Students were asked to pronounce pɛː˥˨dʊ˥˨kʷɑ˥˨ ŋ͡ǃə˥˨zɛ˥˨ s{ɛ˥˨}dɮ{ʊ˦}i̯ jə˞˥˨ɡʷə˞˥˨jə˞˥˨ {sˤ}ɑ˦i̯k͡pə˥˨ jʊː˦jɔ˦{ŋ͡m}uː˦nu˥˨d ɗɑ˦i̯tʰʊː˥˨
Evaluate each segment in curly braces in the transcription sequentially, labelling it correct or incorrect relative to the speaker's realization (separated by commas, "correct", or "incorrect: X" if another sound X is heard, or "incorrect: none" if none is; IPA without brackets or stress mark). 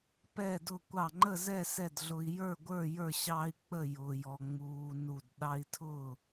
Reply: correct, correct, incorrect: ɕ, correct